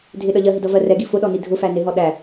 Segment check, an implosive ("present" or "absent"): present